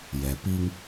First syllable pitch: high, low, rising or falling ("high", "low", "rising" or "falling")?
low